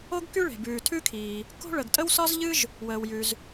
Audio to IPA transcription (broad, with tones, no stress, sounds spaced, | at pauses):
o˥ ɡ k y˥ ɭ e̤˩ b ʉː˩ tʰ ʉ˥ kʰ iː˩ | k o̤˥ ɭ ə˩ ɡ tʼ ə˥ w s ɒ˥ z ʎ ɨ˥ ʒ | w əː˩ w j ʉ˩ z